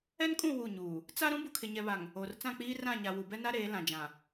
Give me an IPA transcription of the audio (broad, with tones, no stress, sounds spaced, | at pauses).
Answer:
ɛ˦ n kʼ ũ˦˨ w u˦˨ ɲ uː˨ | t͡s a˦ ɾ ũ˦ b u˨ kʰ ɪ˨ ɲ ɛ˨ β a˨ ŋ | o˨ r t͡s ã˦˨ k͡p iː˦ r ã˦˨ ɲ a˨ w u˨ b ɛ˦ n a˦ ɾ eː˨˦ l ã˨ d͡ʒ ã˨